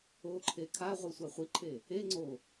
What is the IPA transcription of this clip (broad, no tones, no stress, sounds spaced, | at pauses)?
o ǃʰ e kʰ a ʁʷ ɯ sʷ a χʷ i ǃʰ e | e ŋ͡ǀ o